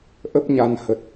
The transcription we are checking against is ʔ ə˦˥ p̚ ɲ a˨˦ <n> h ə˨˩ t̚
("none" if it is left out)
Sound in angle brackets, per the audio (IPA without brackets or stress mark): n